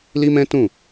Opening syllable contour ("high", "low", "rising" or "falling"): high